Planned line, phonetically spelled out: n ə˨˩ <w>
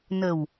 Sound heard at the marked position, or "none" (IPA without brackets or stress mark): w